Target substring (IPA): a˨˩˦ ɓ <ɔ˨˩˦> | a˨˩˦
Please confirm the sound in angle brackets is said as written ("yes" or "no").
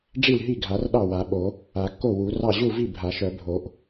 no